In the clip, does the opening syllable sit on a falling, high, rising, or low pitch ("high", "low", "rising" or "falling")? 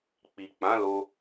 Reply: low